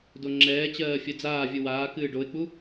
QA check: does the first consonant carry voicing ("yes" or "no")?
yes